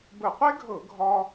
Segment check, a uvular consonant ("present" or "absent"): present